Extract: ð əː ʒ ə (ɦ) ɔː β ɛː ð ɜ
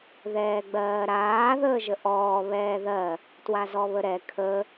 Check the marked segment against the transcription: incorrect: ʔ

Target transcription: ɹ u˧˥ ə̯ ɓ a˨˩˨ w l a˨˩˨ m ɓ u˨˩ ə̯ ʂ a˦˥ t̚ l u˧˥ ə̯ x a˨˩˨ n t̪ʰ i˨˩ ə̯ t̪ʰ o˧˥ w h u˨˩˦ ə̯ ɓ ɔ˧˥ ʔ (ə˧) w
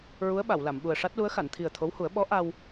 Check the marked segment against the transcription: incorrect: a˧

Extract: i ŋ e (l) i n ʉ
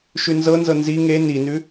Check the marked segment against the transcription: incorrect: n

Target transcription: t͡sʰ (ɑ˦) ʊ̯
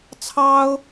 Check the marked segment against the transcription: correct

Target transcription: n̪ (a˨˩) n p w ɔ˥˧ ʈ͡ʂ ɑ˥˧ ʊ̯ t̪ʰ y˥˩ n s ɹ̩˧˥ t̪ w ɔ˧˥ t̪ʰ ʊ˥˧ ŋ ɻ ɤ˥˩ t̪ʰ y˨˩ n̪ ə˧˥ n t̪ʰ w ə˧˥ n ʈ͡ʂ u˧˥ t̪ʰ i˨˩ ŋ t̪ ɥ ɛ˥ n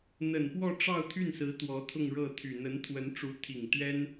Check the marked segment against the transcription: incorrect: ə˨˩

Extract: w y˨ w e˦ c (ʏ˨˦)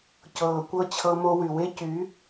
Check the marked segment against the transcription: incorrect: y˨˦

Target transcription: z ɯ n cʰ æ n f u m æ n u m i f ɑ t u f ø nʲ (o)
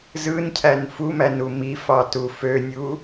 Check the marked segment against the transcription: incorrect: u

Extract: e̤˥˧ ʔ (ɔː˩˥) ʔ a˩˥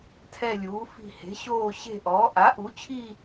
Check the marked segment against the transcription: correct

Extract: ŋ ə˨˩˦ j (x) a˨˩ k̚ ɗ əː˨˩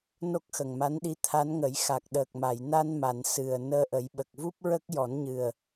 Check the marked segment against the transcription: correct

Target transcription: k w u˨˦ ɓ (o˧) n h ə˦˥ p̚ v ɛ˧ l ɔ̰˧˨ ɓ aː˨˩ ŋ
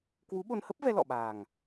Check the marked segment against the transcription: correct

